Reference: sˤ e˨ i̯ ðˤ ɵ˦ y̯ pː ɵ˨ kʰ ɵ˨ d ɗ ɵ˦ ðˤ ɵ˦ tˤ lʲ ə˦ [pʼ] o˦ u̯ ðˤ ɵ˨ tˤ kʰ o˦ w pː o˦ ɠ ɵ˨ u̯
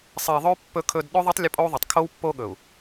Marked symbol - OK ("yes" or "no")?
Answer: yes